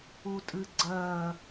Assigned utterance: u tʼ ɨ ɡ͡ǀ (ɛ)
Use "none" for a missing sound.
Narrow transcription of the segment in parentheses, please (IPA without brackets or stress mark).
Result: ɜ